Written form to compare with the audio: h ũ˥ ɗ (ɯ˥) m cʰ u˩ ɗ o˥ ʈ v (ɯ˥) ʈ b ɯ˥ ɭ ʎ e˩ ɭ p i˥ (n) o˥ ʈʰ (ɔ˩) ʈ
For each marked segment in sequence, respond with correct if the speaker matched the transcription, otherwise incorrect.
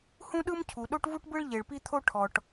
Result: correct, incorrect, incorrect, correct

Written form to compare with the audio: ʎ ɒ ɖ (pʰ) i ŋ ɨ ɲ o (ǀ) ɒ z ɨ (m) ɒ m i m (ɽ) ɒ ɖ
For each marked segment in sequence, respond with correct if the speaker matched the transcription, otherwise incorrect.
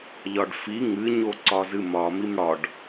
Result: incorrect, correct, correct, correct

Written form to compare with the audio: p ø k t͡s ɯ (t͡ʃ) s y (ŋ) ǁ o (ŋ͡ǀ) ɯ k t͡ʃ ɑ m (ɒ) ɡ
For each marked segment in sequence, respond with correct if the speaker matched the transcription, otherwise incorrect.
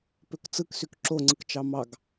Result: incorrect, incorrect, correct, incorrect

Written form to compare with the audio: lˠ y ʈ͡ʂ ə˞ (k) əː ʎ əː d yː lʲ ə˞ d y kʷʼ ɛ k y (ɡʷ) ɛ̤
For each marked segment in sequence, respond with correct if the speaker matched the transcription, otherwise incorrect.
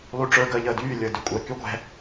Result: incorrect, correct

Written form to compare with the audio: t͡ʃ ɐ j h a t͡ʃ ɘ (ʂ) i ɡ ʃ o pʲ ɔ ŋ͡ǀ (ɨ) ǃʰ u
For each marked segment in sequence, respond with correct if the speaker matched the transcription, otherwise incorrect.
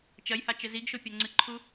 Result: incorrect, correct

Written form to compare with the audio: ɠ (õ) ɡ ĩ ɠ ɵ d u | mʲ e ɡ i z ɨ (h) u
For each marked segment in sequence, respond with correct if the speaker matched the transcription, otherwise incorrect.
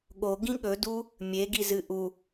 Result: incorrect, incorrect

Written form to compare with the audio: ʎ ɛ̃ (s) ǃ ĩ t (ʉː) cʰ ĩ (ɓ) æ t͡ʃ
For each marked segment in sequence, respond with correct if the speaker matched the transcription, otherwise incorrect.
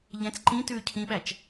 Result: incorrect, correct, correct

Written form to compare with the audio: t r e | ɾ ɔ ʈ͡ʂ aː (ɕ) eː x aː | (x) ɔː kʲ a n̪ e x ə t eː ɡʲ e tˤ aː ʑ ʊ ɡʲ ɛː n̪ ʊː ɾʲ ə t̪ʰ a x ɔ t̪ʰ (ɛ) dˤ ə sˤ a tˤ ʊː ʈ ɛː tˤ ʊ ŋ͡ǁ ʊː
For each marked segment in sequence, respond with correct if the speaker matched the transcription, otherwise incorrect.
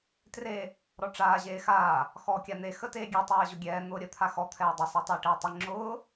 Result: incorrect, correct, incorrect

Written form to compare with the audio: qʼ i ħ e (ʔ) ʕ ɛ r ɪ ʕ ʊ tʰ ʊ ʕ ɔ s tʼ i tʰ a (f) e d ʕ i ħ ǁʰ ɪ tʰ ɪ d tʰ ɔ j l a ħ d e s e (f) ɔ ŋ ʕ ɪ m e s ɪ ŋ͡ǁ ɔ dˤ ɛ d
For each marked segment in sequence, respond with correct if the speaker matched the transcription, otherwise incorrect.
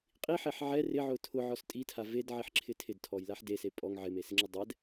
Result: incorrect, incorrect, incorrect

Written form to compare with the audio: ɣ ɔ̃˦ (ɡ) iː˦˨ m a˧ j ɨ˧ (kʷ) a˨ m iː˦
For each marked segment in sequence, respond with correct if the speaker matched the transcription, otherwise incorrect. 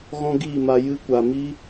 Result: correct, correct

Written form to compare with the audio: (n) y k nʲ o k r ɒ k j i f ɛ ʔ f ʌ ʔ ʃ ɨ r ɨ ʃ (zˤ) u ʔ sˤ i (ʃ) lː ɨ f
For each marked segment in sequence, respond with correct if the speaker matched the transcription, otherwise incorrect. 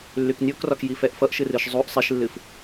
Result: incorrect, correct, correct

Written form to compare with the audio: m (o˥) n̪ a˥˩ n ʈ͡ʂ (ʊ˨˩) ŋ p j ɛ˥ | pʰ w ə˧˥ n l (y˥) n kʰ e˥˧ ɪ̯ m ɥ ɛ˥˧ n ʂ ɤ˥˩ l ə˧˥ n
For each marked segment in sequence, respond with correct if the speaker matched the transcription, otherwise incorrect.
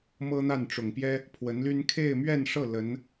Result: incorrect, correct, correct

